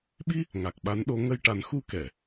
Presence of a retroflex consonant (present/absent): present